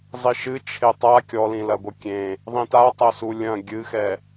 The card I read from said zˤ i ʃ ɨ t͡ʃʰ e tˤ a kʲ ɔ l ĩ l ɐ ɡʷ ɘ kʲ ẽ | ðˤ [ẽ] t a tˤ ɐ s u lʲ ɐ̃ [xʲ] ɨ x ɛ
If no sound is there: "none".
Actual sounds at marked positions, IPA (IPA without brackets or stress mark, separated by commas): ĩ, ɡʲ